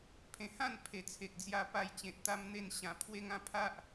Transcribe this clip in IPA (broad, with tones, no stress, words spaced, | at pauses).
pʰẽ˨˩hã˥˧n pʰe˨˩t͡sʰe˨k̚d͡zja˦ pa˧jt͡ɕẽ˨t̚ t̪a˦mn̪e˦n ɕã˧ pʰwe˦ŋã˦ pʰa˦ʔ